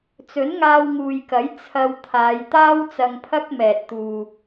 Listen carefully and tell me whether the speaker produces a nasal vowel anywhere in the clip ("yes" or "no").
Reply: no